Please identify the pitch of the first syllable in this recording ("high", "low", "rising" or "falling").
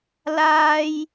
high